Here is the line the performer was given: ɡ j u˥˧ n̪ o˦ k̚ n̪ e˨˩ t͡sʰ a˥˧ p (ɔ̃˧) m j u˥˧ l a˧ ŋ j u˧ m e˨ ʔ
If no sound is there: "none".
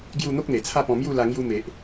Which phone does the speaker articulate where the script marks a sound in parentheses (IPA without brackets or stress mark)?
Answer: ɔ̃˧